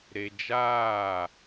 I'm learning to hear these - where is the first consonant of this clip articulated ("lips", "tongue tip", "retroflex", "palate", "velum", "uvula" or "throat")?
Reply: tongue tip